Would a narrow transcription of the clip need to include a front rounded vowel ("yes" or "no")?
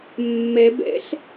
no